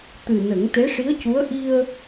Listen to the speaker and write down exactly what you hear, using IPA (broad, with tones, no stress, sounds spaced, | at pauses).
t̪ ɨ˨˩ n ə˨˩˦ ŋ t̪ e˧˥ ʂ i˧˥ ə̯ c u˧˥ ə̯ ʔ i˧ ə̯